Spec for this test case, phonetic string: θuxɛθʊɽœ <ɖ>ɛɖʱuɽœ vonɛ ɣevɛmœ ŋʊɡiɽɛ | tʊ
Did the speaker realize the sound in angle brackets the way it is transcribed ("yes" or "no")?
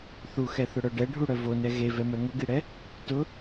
yes